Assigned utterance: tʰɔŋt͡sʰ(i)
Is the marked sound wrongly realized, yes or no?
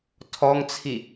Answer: no